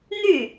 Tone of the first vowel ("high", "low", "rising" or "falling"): falling